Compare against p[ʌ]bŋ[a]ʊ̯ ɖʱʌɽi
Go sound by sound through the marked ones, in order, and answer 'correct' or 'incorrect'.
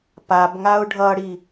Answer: incorrect: a, correct

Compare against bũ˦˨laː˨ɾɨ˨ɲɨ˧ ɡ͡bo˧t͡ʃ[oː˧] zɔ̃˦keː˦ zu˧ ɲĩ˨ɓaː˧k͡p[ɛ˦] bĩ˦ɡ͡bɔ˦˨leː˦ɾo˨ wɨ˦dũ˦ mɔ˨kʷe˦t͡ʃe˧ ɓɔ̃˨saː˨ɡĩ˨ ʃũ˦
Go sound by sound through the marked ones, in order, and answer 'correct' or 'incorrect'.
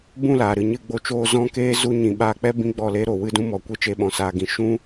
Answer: correct, correct

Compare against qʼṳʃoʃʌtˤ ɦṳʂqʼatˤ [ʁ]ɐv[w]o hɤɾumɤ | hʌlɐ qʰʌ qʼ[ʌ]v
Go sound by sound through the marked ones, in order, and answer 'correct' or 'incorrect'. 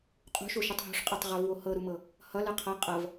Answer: correct, correct, correct

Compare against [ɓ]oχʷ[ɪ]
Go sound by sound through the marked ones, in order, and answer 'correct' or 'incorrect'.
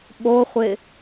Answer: correct, correct

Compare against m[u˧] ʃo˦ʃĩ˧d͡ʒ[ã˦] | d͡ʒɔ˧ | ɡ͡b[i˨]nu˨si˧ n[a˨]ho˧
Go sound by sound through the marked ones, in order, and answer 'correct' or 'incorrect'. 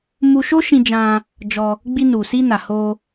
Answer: correct, incorrect: ã˧, incorrect: i˧, correct

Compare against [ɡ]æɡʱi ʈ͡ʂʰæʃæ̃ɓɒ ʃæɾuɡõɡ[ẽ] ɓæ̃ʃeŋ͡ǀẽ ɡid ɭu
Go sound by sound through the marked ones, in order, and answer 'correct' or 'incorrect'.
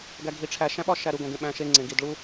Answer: correct, correct

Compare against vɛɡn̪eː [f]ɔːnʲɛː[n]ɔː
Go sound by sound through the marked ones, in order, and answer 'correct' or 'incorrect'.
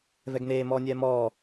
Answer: incorrect: m, incorrect: m

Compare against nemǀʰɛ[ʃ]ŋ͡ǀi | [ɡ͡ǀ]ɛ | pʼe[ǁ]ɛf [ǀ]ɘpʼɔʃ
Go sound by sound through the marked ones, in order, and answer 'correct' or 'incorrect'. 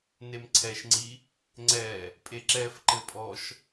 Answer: correct, incorrect: ŋ͡ǀ, correct, incorrect: ǃ

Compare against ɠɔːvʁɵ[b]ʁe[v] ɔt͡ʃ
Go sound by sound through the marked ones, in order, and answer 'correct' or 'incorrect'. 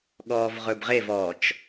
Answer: correct, correct

